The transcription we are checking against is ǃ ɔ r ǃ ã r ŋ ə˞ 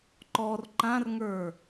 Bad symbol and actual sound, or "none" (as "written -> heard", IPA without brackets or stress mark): none